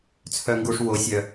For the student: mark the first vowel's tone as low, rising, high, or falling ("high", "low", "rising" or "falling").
high